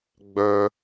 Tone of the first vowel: low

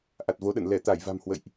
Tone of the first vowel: low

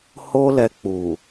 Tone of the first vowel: high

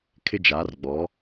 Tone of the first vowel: high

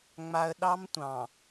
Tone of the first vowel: low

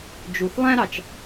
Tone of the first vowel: low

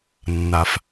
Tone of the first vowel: low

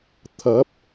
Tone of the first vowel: rising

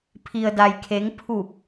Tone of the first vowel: low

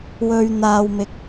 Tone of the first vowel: low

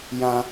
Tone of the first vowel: high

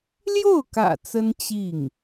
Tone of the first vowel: falling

